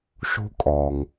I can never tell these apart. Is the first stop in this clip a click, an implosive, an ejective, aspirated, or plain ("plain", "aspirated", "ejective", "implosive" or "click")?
ejective